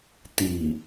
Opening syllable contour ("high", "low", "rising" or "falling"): low